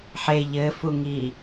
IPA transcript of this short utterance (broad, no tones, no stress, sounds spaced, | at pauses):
ħ e ʎ ɘ f u ŋ i